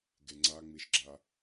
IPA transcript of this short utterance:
ɡ e ŋ͡ǀ a ŋ͡m i ʃ ɡ͡ǁ a

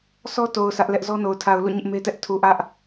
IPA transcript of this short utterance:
sʰ ɔ˦ t o˨ ʊ̯ s ä˦ ʔ l ɛ˦ ʔ z ɔ˦ n o˨ ʊ̯ tʰ a˨ ʊ̯ l ṵ˦˨ ɲ ɪ˦ ʔ m e˦ t ɛ˦ ʔ tʰ u˨ ʔ ä˦ ʔ

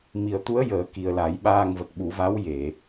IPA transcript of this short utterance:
m i˨˩ ə̯ t̪ u˧˥ ə̯ j əː˨˩˦ k i˨˩ ə̯ l a˨˩˦ j ɓ aː˧ ŋ v ə˨˩ k̚ ɓ u˨˩˦ v a˧˥ w j e˨˩˨

